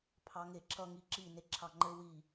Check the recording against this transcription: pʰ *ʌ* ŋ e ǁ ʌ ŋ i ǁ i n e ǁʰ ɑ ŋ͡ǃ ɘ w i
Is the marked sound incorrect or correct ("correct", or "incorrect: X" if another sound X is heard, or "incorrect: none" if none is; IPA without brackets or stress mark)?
incorrect: ɑ